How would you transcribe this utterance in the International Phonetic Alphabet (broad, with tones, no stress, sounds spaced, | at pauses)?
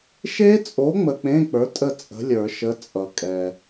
ʃ e˦˥ t͡sʼ o˨˥ ŋ͡m ə˨ k͡p ẽ˧˥˧ k͡p ə˞˨˥ tʼ ə˦˨ t͡sʼ ə̤˨˥ lʲ ə˞˨˩˦ ʃ ə˨˥ t͡sʼ ʌ˨˩˦ kʼ ɛ˨